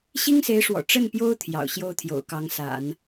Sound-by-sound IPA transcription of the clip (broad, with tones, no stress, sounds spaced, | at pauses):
ɕ i˥ ŋ s e˧˥ ɪ̯ ʂ w ɔ̰˨˩ ʈ͡ʂ ə˥˩ n p j o˥ ʊ̯ t̪ʰ j ɑ̰˨˩ ʊ̯ ɕ j o˥ ʊ̯ t̪ʰ j o̰˨˩ ʊ̯ k ɑ˧˥ ŋ s a̰˨˩˦ n